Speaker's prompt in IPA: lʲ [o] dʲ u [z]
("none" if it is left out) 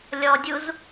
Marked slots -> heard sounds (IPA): ɔ, z

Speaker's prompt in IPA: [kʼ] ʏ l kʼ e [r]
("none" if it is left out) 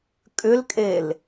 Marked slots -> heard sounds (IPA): kʼ, l

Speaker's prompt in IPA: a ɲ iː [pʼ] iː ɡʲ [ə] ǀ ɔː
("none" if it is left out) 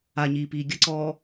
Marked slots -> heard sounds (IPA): p, ə

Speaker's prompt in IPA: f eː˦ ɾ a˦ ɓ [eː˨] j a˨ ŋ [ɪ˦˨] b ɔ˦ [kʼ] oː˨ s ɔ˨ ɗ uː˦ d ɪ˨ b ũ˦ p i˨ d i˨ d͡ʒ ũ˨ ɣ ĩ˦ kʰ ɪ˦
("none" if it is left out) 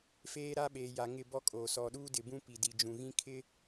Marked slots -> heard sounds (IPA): eː˨, ɪ˦˨, kʼ

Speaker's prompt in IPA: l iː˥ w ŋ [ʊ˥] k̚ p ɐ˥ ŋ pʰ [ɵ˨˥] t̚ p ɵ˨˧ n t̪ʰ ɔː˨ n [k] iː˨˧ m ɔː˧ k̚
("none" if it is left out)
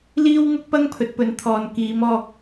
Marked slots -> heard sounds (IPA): ʊ˥, ɵ˨˥, k

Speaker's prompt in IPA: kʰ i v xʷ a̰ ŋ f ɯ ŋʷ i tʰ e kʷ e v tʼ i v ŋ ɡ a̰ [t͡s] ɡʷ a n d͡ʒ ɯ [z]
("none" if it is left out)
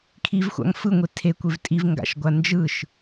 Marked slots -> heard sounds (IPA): ʃ, ʃ

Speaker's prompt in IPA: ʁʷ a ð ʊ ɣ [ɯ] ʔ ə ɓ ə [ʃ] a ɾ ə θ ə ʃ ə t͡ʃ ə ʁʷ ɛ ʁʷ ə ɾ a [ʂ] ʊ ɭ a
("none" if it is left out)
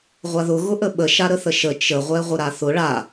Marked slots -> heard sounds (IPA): ʊ, ʃ, θ

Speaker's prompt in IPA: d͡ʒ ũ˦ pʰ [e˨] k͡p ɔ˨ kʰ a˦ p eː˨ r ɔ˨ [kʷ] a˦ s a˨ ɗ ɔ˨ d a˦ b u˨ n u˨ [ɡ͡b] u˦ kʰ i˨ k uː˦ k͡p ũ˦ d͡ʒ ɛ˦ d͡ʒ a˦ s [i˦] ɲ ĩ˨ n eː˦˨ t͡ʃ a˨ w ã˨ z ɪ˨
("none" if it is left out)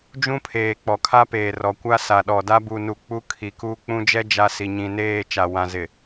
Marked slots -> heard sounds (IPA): eː˨, kʷ, k͡p, i˨

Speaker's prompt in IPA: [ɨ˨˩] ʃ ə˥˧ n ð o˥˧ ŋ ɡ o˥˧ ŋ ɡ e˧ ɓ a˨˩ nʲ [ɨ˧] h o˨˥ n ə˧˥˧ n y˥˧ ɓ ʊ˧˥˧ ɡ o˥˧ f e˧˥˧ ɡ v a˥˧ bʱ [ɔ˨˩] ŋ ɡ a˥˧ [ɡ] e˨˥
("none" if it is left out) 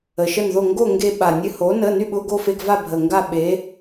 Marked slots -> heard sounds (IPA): ə˨˩, ɨ˧, ə˨˩, ɓ

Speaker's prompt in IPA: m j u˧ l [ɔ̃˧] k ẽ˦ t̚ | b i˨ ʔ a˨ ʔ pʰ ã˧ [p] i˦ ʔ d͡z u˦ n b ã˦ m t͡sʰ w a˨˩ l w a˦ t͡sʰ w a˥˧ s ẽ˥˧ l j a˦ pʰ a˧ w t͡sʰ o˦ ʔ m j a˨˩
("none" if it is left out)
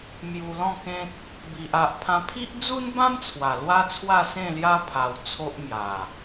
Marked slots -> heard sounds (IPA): ɔ̃˥˧, pʰ

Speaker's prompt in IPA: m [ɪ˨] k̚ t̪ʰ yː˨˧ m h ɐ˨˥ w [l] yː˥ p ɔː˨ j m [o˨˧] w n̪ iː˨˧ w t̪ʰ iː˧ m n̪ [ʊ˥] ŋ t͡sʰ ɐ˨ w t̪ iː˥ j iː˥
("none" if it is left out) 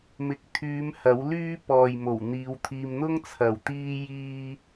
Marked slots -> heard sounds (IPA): ɪ˨˥, l, o˨˩, ʊ˥

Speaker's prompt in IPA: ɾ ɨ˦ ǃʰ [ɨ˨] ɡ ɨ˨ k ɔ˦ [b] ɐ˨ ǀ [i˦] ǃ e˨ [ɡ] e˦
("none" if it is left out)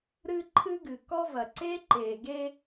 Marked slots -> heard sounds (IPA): ɨ˦, v, e˦, ɡ

